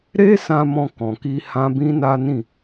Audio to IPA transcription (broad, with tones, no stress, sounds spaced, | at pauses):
ɾ e˦ s ã˧ m ɔ̃˧ k ɔ̃˨ k i˧ h ã˦ b ĩ˦ n a˦ n ĩ˦˨